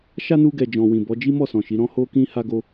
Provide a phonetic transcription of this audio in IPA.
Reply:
ʃa˦nu˧ɡɛ˨ d͡ʒɔ̃˨wĩ˨bɔ˨˦ d͡ʒi˦mɔ˦˨sɔ̃˨ ʃi˨˦ ɾɔ̃˦ ho˧kĩ˧ ha˦ɡo˦

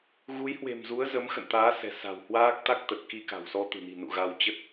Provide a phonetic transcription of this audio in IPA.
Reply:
ɣu˨˦jhwe̤˨˩mzu˨˦ə̯ zə˨˦mxə̰˧˨nt̪aː˨˦ sɛ̤˨˩ sa̤˨˩whwaː˦˥k̚t̪a˦˥k̚ t̪ə˨˩t̚ki˧ka̤˨˩wsɔ˧ t̪ɨ̤˨˩ni̤˨˩nṵ˧˨ ɣa˧w t͡ɕə˦˥t̚

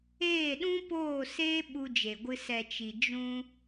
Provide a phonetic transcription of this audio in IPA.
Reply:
eː˦˨ɗũ˦ poː˦˨seː˦ ɓu˧d͡ʒe˨ɡʷɨ˧ sɛ˨t͡ʃi˨ d͡ʒũ˧

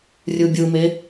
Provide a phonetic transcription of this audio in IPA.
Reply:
rʲɯbʲɯme

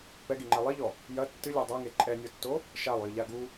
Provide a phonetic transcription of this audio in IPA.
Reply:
pɛɡiŋ͡ǃɛ lˠiʎɔ | jɐ tːɨlʲɔ dˤaŋe ǃʼɛnʲɔtːo | ʃalˠjɨʎa ɡu

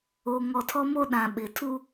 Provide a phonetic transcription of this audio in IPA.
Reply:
o˨ ŋɔ˨tʰɔ˦mo˦ɗã˨ ɓɪ˨ tʰu˦

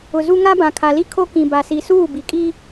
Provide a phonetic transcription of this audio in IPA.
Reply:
ʊ˨ zu˦ ŋa˦bã˨kʰa˨li˦ kʰo˦kĩ˨ba˨si˨ suː˦˨bi˨ kʼi˦

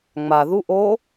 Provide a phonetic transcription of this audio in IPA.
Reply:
ŋ͡ma ðu ʔo

